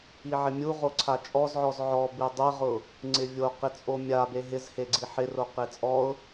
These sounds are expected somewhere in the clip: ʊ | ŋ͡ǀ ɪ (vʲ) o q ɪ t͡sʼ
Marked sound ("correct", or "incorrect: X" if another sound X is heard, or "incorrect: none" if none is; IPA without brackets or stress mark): correct